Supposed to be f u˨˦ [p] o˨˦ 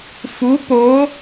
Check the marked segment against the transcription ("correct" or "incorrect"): correct